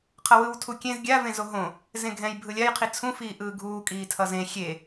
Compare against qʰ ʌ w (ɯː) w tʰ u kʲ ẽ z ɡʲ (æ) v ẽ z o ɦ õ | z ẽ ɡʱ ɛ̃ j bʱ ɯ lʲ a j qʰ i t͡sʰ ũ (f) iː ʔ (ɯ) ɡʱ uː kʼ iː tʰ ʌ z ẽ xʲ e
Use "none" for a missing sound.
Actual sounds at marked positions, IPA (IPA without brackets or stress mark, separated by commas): ɯ, a, f, ɯː